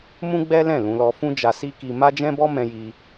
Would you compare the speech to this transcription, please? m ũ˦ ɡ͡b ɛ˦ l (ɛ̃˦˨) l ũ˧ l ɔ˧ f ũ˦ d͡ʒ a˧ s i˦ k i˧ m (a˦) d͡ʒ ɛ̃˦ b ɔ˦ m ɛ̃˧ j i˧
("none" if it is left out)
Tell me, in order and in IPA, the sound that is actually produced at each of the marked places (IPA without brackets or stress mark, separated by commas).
ɛ̃˦˨, a˦